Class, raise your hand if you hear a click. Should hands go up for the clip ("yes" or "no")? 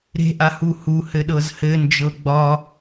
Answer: no